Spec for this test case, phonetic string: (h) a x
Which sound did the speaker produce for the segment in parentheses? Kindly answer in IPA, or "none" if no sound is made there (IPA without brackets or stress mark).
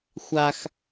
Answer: xʷ